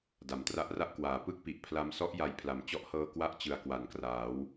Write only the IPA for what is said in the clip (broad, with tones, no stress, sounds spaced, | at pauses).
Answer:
d a˩˦ m t r a˦˥ ʔ r a˥˩ ʔ k w aː˨˩ p ɯ˥˩ k̚ p i˨˩ ʔ pʰ l a˧ m s ɔ˦˥ ʔ j a˧ j pʰ l a˨˩ m t͡ɕ ɔ˦˥ ʔ h ɤː˧ k w a˦˥ ʔ t͡ɕ ɯ˨˩ a̯ k w a˩˦ n k r aː˩˦ w